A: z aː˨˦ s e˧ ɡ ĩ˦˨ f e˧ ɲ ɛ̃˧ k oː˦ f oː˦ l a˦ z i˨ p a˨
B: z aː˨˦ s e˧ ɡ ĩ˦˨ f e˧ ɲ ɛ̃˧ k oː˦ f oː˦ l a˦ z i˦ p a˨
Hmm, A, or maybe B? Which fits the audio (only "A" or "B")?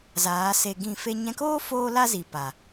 A